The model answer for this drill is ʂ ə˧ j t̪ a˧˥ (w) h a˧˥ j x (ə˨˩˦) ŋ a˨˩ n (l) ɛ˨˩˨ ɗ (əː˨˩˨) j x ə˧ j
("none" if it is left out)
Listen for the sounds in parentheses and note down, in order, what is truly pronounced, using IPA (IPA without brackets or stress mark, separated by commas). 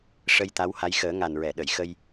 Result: w, əː˨˩˦, ɹ, ə˨˩˨